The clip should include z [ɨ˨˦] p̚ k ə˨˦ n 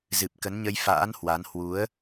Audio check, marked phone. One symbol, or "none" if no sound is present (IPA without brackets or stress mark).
ɨ˨˩